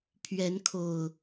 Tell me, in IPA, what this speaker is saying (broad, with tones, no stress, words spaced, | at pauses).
pʰɥɛ˨˦nkʰo˨˩ʊ̯